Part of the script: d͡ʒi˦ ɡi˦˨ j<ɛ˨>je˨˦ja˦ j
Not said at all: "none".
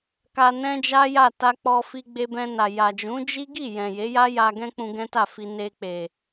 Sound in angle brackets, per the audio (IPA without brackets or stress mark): ɛ̃˨